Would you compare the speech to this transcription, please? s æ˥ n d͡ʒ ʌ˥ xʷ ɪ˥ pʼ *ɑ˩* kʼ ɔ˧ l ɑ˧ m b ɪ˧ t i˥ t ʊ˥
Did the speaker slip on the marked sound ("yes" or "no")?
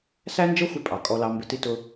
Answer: no